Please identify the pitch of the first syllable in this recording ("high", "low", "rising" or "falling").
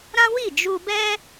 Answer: high